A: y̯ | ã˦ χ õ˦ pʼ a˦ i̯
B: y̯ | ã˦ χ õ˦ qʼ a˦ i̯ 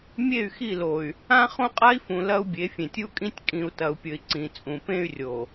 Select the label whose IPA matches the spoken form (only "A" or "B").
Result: B